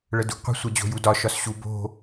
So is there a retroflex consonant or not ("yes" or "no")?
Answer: yes